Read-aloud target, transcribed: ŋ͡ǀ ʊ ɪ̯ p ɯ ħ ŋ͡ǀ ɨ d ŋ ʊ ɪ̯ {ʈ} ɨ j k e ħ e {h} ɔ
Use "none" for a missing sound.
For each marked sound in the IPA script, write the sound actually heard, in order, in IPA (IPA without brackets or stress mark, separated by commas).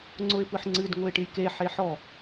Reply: ʈ, ħ